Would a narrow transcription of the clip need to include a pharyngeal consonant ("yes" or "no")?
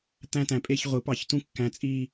no